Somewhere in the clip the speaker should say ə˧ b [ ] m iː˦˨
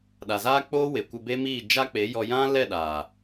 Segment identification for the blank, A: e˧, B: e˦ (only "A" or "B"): B